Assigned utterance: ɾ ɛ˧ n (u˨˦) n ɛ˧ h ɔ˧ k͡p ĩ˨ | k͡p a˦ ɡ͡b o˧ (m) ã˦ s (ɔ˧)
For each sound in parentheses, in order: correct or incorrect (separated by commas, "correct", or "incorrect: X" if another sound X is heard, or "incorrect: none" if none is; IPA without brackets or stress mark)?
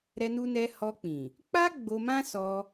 incorrect: u˧, correct, correct